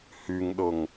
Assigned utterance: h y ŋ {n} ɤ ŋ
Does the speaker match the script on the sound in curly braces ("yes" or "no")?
no